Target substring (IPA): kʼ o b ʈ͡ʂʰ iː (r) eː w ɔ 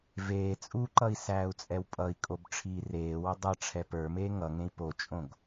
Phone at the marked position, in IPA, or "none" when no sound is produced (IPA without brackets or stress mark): r